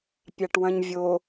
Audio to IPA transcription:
pʲ a ʈ w ɐ̃ ɲ vʲ o

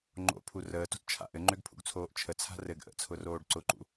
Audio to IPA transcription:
ŋ͡ǃ o̰ pʰ u r əː t o̤ t t͡ʃʰ a̰ ʔ ɘ ŋ͡ǃ ø ɡ pʰ ṵ ɡ t͡sʰ oː ʔ t͡ʃʰ ə t͡sʰ a̤ r ɘ ɡ ʔ ə̰ t͡sʰ ʊ r oː ɖ ǀ ʊ ǃ ṵ

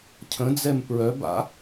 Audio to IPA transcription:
cʰ ə̃ d͡z ɛ m p ɹ œ b a̰

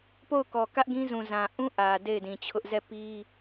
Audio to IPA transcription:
p o˦˨ ʊ̯ k ɔ˨ k ä˦ ʔ ɡ ĩ˦ z ũ˨ z ã˨ ʔ ũ˦ ʔ ä˨ d e˦˨ ɪ̯ d ĩ˨ t͡ɕʰ ʊ˦ ʔ z ɛ˦˨ p i˦

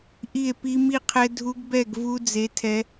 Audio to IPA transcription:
ʔ i˥˧ e̯ p i˦˥ m i˥˧ qʰ ɛ˦˥ dʱ u˦˥ ɡ b ɛ˥˧ ɡ v u˦˥ d͡z e˦˥ tʰ ɛ˦˥

